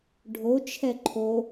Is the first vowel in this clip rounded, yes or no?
yes